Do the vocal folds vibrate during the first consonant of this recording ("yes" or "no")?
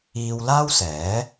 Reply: yes